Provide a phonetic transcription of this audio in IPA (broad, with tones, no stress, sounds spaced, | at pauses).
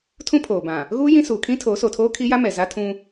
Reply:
tʰ ũ˦ pʰ oː˨ b ã˨ | ɣ uː˦ j ĩ˦ s uː˨ kʰ ĩ˦ tʰ oː˨˦ s o˨ tʰ oː˦ kʰ i˦ j a˦ m ɛ˨ z a˦ tʰ ũ˦